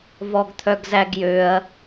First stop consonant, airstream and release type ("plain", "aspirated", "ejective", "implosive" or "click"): plain